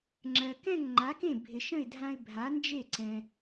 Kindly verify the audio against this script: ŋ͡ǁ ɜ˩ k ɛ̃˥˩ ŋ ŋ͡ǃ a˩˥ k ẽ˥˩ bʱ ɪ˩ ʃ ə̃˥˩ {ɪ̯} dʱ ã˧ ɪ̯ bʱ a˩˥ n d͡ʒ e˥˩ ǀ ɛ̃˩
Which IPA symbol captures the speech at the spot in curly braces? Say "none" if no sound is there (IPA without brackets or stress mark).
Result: ɪ̯